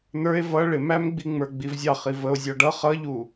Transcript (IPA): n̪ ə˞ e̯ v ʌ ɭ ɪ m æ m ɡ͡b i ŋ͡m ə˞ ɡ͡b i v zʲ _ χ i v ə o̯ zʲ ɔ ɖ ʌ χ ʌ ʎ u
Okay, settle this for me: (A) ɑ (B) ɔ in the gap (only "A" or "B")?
A